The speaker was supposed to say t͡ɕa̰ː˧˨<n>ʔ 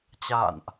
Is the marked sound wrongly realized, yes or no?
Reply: no